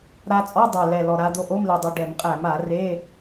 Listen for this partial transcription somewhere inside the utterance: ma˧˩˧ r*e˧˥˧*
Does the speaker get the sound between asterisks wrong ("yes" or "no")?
no